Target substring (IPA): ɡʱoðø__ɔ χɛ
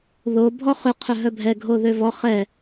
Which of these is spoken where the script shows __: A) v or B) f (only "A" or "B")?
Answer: A